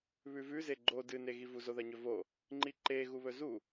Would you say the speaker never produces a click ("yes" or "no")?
no